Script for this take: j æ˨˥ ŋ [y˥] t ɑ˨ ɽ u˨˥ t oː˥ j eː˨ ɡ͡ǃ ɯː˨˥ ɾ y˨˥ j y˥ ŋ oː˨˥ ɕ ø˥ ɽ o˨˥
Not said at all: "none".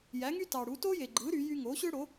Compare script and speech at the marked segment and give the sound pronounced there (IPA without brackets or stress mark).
y˥